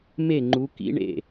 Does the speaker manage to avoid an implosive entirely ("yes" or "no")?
yes